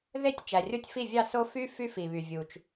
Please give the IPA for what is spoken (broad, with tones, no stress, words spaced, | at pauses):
ðe˥˧tʲ t͡ʃæ˨rʲo˥tʲfi˥˧vʲɑ˥˧ so˥ fy˥ fy˥fi˨βy˨ vʲu˨t͡ʃ